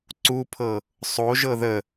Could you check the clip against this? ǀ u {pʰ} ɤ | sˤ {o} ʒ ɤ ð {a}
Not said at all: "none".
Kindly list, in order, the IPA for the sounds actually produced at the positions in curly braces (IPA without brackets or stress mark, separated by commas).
pʰ, o, ə